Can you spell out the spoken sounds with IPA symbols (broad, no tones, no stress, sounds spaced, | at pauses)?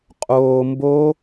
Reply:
qʼ oː m b o